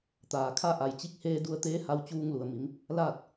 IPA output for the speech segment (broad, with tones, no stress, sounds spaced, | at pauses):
t̪ aː˩ kʰ a˥˨ ʔ a˧˩ j t͡ɕ i˧ k̚ h eː˧ d u˧ ə̯ t̪ eː˧˥ h a˧ w t͡ɕ uː˧ ŋ l u˩ ə̯ m i˩˧ m | l aː˥˨ t̚